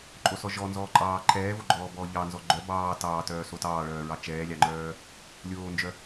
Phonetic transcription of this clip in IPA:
ǃʼ o s ɔ ʒ ɔ n z ɔː ǃʼ ɑː ǃʰ ɛː v o ɡ͡ǃ ɔː b ɔː ʎ ɑ n z ɔ ɡ͡ǃ œ b ɑː t ɑː t œː s o t ɑː ɭ œː ɹ ɑ t͡ʃ ɛː lʲ ɑ ŋ͡ǃ œː | lʲ oː n d͡ʒ œ

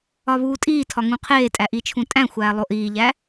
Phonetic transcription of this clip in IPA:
ɒ β uː tʼ iː tʰ ɒ ŋ ũ qʰ eː tʼ æ ʔ i t͡ʃʰ ũ tʼ æ̃ xʷ æː lˠ o ʔ iː ʎ æ

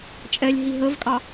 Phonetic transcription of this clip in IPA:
t͡ʃʼ ɛ lʲ ɦ i ɦ ə v kʼ ɑ

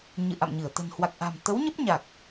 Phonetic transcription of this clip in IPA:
ɲ ɨ̰˧˨ ʔ a̰˧˨ m ɲ ɨ˧˩ ə̯ t̪ ə̤˨˩ n h w a˨˩ k̚ ʔ a̤˨˩ m t̪ ə˨˦ w ɲ ə˦˥ p̚ ɲ a˨˩ k̚

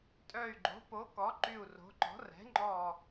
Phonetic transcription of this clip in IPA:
tʼ œ˧˩ y̯ ɡ͡ǃ o̤˩˥ p o˩˥ k ɔ˩˥ ǃ y˧˩ u̯ r o̤˩˥ ǃ ɔ̤˩˥ r ɛ̤˩˥ ŋ͡ǃ ɔ˧˩

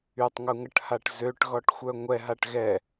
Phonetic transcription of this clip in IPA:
y tˤ ŋ u ŋ ə ʈ h a ʈ z ø ʈ ɣ ɔ ʈ xʷ œ ŋʷ ɛ ɦ a ʈ ɣ ɛ

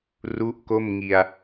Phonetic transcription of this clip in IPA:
r u˦˥ ʔ k o˥˩ m ŋ i˧ a̯

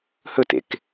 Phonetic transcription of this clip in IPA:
h ɵ t ḛ k

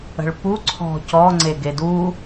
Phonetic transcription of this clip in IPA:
ə̤ ɭ p u ǀʰ ɔ̤ c ɔ ŋ͡ǀ e ɡ e d u

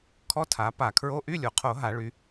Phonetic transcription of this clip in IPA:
kʰ ɔ˧˥˧ tʰ a˩˧ p a˧˩˧ kʰ ɹ o˧˥˧ ʔ y˧˥˧ lʲ o˩ qʰ o˧˩˧ ɦ a˧˩˧ ɭ y˩˧

